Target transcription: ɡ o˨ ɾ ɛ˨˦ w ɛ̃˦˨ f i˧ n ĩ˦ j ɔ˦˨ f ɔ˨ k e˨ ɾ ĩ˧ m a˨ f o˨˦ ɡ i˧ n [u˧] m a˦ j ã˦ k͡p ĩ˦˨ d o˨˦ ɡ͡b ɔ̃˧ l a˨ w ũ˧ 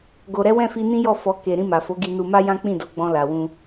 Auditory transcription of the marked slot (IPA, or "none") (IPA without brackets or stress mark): u˧